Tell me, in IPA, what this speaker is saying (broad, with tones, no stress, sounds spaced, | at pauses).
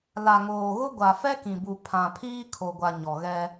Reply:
l a˨ ŋ oː˨ ɣ ʊ˦ ɡʷ a˨ f ɛ˦ k ĩ˨ b u˨ pʰ ã˨ pʰ iː˦ kʰ o˨ ɡʷ a˨ ɲ ɔ˨ ɣ ɛ˦